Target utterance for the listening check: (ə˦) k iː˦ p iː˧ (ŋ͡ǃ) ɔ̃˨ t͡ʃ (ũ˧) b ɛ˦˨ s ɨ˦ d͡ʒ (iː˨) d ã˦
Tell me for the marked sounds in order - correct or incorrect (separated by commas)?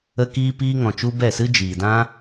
correct, incorrect, incorrect, correct